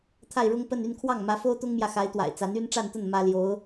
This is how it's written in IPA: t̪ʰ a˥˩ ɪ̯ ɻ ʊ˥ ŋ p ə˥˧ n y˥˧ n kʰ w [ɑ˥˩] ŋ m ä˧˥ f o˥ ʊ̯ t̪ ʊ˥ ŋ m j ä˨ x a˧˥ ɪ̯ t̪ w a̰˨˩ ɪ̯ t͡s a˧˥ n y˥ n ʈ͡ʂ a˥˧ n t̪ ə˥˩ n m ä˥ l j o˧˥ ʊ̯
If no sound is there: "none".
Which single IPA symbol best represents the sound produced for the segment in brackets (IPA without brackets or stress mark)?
ɑ˥˩